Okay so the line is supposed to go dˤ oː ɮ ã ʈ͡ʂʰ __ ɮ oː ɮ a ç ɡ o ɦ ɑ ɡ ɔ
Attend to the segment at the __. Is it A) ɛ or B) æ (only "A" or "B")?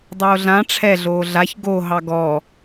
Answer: A